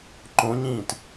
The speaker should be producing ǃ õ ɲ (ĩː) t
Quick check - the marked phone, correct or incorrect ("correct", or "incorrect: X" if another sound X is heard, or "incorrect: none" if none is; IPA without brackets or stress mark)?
correct